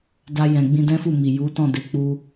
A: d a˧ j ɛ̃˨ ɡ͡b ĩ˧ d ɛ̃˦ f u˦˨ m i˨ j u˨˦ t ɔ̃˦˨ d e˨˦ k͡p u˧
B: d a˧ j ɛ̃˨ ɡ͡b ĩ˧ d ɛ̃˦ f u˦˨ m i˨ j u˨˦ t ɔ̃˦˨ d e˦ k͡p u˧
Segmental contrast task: A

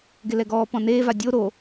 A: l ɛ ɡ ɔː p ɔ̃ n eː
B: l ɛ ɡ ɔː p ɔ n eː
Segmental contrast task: A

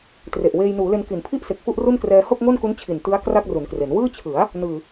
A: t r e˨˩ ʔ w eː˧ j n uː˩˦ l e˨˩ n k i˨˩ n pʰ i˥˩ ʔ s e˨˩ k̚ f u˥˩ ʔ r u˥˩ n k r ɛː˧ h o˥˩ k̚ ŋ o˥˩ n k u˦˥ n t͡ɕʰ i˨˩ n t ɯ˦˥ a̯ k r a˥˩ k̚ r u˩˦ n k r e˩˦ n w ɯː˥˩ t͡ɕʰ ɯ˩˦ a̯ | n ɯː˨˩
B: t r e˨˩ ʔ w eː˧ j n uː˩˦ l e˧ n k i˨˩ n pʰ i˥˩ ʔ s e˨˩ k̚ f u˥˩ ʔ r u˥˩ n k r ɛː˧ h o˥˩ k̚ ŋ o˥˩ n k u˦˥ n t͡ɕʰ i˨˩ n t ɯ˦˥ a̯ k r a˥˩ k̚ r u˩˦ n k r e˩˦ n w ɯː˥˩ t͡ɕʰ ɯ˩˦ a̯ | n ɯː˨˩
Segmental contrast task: B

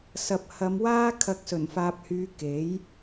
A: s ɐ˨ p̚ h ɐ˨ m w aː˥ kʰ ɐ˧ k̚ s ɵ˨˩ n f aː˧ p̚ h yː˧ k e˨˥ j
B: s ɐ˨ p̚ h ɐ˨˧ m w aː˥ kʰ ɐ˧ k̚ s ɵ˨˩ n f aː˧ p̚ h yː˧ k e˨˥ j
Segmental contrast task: B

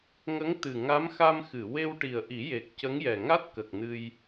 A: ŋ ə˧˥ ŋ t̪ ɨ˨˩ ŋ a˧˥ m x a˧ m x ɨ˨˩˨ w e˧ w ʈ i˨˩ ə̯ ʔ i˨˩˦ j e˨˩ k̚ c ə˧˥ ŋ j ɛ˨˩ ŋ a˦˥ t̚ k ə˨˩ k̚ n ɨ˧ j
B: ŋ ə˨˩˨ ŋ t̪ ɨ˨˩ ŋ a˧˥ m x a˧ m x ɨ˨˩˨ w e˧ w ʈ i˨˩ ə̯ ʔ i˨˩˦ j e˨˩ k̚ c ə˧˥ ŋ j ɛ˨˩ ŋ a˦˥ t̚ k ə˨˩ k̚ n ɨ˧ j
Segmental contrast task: A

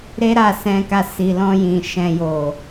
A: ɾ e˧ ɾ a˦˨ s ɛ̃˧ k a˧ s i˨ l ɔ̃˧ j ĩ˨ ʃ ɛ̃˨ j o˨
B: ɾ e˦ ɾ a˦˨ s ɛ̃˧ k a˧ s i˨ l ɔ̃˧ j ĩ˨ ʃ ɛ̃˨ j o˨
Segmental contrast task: B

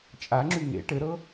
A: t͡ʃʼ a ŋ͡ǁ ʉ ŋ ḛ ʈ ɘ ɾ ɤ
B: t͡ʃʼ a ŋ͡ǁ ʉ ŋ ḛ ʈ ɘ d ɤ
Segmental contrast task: A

